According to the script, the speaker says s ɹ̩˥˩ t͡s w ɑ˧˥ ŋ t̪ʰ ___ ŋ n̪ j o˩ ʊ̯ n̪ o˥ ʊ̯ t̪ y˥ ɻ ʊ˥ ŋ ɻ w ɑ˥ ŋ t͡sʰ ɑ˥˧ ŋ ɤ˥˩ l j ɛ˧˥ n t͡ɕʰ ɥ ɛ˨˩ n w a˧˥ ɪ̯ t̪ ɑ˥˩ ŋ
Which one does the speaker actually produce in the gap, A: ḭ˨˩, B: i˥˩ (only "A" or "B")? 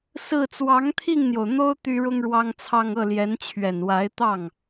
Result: B